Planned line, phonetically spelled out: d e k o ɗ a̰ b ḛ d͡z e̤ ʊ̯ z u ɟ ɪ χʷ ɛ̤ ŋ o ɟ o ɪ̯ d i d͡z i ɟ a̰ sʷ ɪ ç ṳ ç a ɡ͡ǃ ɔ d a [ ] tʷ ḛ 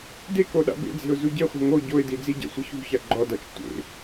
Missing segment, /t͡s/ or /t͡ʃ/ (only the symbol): t͡ʃ